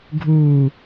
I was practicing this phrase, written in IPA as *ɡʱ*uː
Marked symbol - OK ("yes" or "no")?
yes